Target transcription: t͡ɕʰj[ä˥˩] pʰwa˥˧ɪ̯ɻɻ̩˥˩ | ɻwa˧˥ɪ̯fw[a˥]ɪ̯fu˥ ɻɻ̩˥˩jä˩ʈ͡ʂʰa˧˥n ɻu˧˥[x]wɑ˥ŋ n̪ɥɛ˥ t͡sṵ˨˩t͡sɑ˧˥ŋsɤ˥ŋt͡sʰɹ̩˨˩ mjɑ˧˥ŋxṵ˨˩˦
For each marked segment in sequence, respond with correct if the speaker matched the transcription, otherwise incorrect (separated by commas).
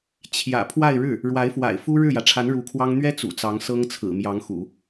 incorrect, incorrect, incorrect